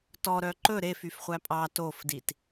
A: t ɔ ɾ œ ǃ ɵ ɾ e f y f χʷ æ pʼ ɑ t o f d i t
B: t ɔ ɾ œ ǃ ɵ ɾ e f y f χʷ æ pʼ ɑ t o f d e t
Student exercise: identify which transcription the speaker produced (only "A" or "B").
A